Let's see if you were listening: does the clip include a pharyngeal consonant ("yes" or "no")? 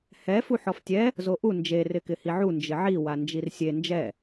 yes